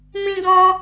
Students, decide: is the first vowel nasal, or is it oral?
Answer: nasal